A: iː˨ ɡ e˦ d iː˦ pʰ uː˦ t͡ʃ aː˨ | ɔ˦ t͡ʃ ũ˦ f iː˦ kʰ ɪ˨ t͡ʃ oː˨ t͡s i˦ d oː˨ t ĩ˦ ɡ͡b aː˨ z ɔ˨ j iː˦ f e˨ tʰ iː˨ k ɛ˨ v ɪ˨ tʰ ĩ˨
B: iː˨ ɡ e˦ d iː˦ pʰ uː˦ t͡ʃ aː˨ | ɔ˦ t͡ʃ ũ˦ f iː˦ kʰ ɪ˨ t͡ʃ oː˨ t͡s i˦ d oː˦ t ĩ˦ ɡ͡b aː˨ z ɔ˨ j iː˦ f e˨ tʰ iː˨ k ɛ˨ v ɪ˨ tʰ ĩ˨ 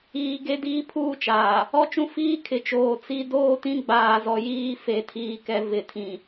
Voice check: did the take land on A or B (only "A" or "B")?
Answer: B